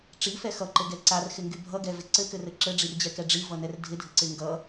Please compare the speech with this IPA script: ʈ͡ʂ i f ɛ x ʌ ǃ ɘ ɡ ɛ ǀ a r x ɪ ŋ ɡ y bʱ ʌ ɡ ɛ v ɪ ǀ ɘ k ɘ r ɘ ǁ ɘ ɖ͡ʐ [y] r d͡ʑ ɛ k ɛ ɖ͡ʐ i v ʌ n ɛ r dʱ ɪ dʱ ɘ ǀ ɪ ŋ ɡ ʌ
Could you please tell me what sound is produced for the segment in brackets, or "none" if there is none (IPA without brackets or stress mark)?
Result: i